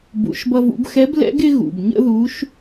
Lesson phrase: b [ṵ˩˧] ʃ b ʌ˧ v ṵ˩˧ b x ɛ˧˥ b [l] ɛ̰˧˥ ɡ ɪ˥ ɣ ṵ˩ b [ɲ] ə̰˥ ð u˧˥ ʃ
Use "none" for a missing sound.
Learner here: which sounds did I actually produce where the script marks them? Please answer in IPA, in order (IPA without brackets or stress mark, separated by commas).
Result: ṵ˩˧, l, ɲ